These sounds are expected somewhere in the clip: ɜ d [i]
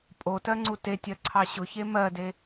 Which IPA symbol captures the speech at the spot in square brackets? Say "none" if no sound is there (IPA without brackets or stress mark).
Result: e